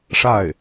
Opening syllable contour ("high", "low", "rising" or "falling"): falling